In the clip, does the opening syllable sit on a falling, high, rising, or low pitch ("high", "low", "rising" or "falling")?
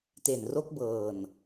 low